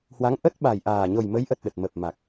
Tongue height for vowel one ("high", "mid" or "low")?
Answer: low